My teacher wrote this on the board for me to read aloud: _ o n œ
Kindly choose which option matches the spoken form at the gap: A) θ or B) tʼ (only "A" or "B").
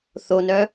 A